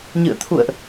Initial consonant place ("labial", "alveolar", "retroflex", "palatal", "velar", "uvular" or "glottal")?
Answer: palatal